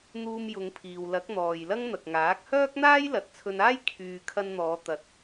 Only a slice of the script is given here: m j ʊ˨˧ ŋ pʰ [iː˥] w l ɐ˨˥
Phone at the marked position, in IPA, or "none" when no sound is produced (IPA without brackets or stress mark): iː˨